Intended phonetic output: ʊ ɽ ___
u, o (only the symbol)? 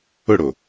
o